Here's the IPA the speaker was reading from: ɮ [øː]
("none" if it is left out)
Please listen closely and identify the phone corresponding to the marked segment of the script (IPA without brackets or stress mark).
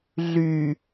yː